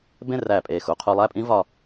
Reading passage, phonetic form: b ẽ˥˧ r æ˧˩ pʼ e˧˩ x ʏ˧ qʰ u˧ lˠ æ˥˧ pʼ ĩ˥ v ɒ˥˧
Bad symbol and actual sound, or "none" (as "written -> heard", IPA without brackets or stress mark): ʏ˧ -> u˧